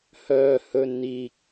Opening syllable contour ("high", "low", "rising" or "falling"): high